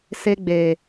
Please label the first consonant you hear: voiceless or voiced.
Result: voiceless